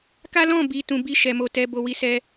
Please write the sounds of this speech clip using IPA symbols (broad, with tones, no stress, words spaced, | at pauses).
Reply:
ka˦lɔ̃˦˨ bi˨ tũ˨bi˧ ʃɛ˨mo˨ tɛ˧ bo˧wi˦sɛ˦